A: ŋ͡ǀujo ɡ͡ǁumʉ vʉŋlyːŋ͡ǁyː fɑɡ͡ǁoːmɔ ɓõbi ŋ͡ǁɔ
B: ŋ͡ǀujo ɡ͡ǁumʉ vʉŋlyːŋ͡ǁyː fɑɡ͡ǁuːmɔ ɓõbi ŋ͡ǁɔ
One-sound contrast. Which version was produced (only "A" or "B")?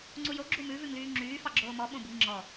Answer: A